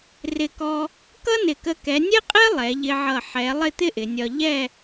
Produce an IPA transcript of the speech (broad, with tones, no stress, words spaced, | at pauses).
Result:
rɪ˧˩kɔ˧ | kʌ˥nɪ˧˩kə˧ kɛ˩˧nʲɛ˥qʼɛ˥ lˠɛ˩˧ʎɪ˧ʕʌ˧˩ ħɛ˩˧ lˠɪ˥˧t̪ɪ˥ʔɪ˩˧nʲɒ˧ ʎɛ˥˧